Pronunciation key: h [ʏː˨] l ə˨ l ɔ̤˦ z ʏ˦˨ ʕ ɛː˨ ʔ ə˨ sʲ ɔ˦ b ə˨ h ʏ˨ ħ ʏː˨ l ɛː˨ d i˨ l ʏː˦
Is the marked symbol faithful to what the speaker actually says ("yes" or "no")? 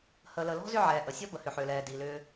no